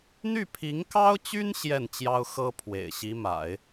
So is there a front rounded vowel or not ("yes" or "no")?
yes